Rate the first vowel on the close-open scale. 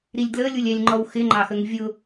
close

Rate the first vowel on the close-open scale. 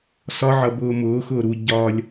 open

